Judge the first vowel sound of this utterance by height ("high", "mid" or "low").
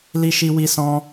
high